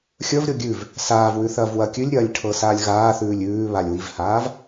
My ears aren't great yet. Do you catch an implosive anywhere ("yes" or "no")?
no